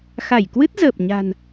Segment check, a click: absent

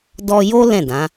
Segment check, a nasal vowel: present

